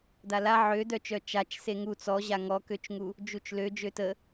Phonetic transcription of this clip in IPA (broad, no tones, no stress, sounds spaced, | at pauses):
d a l a ʕ ø d œ t͡ʃ œ t͡ʃ a t͡ʃ s e ŋ u t͡s ɔ ʑ a ŋ ɔ k ø t͡ʃ ŋ u | d͡ʒ u t͡ʃ l ø d͡ʒ ø t ə